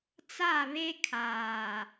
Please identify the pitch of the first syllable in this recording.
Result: falling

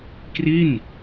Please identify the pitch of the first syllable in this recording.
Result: falling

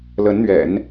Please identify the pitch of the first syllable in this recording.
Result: rising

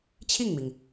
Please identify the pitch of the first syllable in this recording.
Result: falling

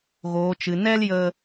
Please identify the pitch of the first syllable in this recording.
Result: low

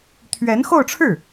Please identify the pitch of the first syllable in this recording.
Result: rising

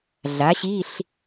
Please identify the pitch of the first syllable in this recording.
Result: rising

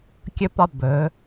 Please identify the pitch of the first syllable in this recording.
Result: high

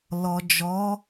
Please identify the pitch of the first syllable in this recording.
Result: low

